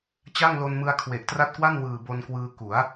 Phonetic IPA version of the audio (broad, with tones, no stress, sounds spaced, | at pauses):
t͡ɕ a˥˩ ŋ l o˧ n m ɯ˧ a̯ kʰ w e˨˩ ʔ t r a˦˥ t̚ k w a˥˩ n w ɯː˨˩ b o˧ n k w ɯː˧ k u˩˦ a̯